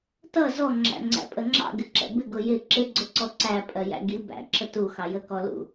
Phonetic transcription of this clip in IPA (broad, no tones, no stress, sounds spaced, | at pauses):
t ʌ z ɔ ŋ͡ǁ æ̰ ŋ͡ǀ æ̰ pʼ ə ŋ͡ǁ ɑ̰ ɡ ɪ ǁ ɛ̰ b ɪ ɡ ʊ j ɪ ǁ ɪ ɡ͡ǀ ʊ ǀ ɔ ǀ æ pʼ ɜ j æ̰ ɡ i b æ̰ ǁ ə t u x ɑ j ə k ɔ l ṵ